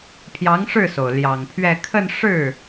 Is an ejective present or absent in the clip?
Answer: absent